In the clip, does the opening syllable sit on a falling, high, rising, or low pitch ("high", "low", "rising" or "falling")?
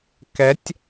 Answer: rising